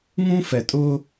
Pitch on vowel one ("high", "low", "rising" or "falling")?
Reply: high